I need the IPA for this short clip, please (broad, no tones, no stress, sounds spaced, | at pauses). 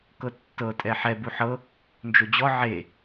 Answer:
k ɤ tː ɤ tʼ ɛ ħ ɛ b u ħ ɤ | n d͡ʒ o d͡ʑ ɔ ʕ e